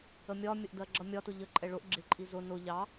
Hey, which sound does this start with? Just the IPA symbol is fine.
ə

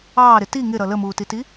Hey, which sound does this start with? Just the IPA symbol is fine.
ɑː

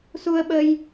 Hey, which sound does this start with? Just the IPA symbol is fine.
s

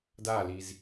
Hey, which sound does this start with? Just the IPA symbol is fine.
d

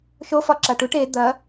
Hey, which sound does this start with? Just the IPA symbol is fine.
ʃ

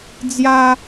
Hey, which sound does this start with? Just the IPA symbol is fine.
d͡z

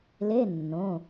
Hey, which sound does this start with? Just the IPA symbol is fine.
l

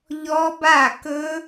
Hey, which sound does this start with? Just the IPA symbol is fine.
ʎ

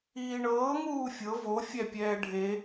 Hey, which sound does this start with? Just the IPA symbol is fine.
iː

